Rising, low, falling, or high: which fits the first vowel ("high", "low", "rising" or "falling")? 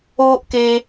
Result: high